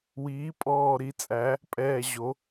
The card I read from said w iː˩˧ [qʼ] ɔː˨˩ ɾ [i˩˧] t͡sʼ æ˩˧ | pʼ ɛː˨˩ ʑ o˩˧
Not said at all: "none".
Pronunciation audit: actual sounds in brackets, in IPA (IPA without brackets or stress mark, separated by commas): pʼ, i˩˧